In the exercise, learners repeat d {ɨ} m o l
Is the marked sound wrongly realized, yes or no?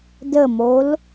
yes